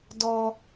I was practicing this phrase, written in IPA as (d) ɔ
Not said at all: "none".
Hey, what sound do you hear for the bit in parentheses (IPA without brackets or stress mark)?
d